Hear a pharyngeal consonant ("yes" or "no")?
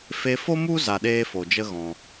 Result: no